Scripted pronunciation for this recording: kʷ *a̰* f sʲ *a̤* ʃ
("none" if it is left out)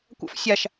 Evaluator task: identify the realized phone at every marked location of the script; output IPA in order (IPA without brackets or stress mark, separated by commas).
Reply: a̰, a